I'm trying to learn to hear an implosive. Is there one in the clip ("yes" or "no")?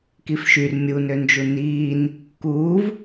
no